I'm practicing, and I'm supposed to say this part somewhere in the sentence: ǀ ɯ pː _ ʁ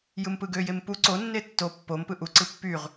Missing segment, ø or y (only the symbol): y